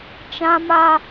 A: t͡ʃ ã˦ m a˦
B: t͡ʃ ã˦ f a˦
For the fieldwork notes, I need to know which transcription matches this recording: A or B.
A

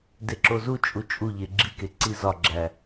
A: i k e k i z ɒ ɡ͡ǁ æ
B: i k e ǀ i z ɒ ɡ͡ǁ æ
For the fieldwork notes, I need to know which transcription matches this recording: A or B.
B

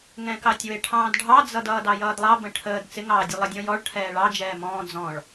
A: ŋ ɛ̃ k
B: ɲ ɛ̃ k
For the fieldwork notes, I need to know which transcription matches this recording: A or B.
A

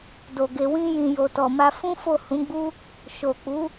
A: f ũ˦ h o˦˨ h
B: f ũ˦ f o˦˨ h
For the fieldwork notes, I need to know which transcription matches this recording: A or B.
B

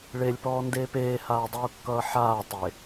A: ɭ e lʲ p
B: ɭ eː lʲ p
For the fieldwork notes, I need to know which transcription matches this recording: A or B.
A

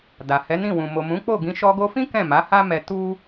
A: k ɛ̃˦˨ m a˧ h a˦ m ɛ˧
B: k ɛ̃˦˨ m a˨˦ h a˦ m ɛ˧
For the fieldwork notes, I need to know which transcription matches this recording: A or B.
B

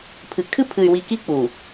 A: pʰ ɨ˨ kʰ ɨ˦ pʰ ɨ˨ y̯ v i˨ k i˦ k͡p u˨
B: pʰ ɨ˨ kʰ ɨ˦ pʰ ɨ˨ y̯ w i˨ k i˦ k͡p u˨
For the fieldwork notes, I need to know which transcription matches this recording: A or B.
B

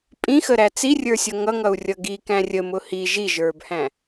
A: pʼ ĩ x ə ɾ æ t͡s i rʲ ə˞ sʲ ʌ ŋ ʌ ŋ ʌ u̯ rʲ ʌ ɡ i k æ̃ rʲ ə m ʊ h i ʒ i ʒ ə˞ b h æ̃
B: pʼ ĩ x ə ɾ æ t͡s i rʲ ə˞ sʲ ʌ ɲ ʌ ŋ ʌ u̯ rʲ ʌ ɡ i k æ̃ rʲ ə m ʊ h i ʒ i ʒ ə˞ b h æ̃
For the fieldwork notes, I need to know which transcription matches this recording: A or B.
A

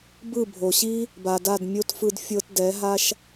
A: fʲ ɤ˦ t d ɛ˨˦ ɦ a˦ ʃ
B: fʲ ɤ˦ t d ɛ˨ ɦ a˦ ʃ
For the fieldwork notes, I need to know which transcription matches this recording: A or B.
A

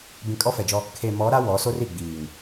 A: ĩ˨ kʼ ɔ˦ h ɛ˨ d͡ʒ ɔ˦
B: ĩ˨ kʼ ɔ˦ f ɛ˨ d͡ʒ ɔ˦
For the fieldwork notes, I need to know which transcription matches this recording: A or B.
B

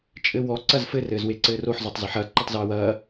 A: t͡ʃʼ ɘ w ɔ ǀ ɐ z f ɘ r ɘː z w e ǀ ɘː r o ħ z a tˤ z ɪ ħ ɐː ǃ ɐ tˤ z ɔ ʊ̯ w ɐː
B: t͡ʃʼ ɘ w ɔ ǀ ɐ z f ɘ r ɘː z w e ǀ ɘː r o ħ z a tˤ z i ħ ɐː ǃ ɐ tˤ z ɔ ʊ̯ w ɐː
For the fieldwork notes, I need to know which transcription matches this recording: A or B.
B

